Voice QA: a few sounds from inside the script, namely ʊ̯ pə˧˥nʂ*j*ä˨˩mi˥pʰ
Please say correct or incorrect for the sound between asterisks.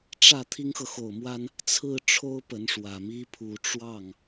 incorrect